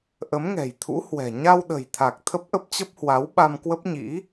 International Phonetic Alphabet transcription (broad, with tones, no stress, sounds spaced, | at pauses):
ʔ ə˨˦ m ŋ ɛ̤˨˩ j t̪ʰ ṵ˧˥ h w ɛ̤˨˩ ɲ a˧ w ɗ ə̤˨˩ j t̪ʰ a˨˩ k̚ t̪ʰ ə˦˥ p̚ ʔ ə˦˥ p̚ t͡ɕ ə˦˥ p̚ h w a˨˦ w ɓ a˧ m k w ə˦˥ p̚ ɲ ḭ˧˥